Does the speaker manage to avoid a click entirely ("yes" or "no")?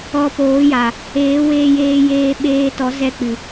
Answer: yes